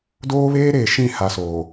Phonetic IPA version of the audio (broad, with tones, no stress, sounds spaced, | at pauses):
d oː˦ β eː˦ ɾ eː˨ ʃ ĩ˦˨ h a˨ s oː˨